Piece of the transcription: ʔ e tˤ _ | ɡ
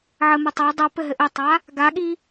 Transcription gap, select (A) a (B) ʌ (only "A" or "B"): A